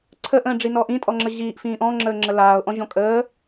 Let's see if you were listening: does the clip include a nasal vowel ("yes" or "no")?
yes